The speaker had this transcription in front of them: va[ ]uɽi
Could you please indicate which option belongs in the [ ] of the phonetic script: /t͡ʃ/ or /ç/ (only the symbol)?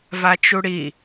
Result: t͡ʃ